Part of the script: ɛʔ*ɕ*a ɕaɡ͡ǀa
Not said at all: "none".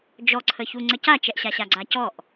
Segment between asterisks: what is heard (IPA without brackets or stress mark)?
ɕ